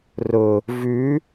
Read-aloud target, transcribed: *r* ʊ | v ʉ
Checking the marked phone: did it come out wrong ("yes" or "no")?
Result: no